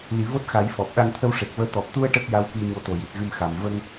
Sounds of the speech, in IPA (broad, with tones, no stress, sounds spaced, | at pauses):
l i˨˩˦ v o˦˥ t̚ x a˨˩˦ j f ɔ˨˩ p̚ ɗ a˧ ŋ t̪ʰ ə˧ w ʂ e˨˩ k̚ v əː˧ t̪ ɔ˨˩ p̚ t̪ u˧ ə̯ ʈ ə˦˥ k̚ j a˧˥ w k i˧ ɲ o˧˥ t̪ o˨˩ j i˨˩ t̚ ɣ ɨ˧ m x a˨˩ m v ə˧ ŋ